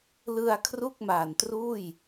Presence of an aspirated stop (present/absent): present